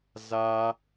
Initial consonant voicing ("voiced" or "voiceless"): voiced